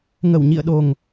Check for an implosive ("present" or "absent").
present